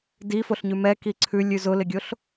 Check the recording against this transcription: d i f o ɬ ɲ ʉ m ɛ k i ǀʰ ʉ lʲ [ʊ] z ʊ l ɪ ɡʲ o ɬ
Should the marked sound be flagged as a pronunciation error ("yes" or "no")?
yes